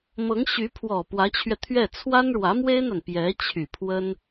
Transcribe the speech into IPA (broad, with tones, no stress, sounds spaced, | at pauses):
m ɤ˧˥ ŋ ɕ y˧˥ pʰ w ɔ˨˩ p w ä˧˥ t͡ɕʰ ɥ ɛ˧ t̪ʰ ɥ ɛ˥˩ t͡sʰ w a˥ n ɻ w ä˧˥ m w e˥ ɪ̯ n̪ a˨ n p j ɛ˧˥ t͡ɕʰ y˨˩ pʰ w ə˥ n